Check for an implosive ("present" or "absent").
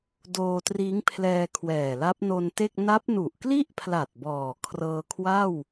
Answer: absent